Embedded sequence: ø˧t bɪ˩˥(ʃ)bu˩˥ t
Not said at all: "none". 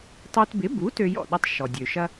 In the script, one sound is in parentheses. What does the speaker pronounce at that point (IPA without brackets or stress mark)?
none